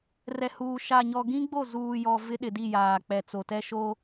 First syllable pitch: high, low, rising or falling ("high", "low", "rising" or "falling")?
low